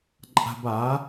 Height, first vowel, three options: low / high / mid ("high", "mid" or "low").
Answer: low